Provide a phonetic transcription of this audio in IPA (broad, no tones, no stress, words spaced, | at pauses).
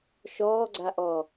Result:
ʃɔːɡ͡ǀaʔɔ